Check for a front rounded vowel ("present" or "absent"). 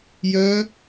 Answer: present